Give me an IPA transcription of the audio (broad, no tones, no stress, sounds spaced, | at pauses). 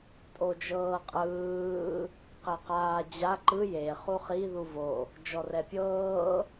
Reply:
tʼ o d͡ʒ ɤː qʼ ɯː | q e q aː d͡ʑ a ǃ ɯ j e χ u χ i ð u v o | d͡ʒ ɔ r ɛ pʲ ɤː